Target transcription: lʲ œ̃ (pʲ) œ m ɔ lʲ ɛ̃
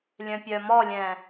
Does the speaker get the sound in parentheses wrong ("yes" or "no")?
no